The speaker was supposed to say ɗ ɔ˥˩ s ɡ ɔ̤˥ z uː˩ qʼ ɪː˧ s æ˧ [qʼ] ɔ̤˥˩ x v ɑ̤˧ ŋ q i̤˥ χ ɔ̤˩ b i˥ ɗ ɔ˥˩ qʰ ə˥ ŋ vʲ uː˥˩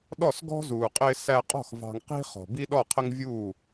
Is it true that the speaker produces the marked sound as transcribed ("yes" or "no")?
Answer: yes